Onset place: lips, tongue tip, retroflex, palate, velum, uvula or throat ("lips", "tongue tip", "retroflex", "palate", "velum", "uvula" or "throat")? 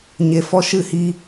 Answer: palate